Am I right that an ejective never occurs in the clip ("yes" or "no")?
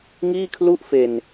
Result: yes